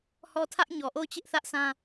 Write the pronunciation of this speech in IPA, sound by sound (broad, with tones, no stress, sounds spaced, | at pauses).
h ɔ˦˨ tʰ ä˦ ʔ ɲ ɔ˨ ʔ o˦˨ ʊ̯ t͡ɕ ɪ˦ ʔ θ ä˦ ʔ sʰ ã˦